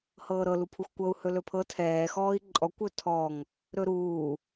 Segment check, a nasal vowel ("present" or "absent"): absent